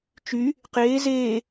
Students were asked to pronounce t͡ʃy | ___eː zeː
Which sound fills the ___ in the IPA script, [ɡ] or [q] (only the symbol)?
q